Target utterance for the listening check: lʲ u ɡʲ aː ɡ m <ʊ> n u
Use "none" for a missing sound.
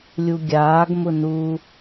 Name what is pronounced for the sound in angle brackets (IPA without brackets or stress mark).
ʊ